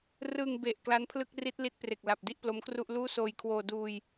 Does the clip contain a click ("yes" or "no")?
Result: no